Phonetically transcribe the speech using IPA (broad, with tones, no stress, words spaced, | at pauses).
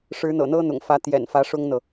ʂɻ̩˧˥n̪ɤ̰˨˩n̪ɤ˥ n̪ʊ̰˨˩ŋfä˧˥ t̪jɛ̰˨˩nfä˧˥ ʂʊ˥ŋn̪ɤ˨